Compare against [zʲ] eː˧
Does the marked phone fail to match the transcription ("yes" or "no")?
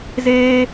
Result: yes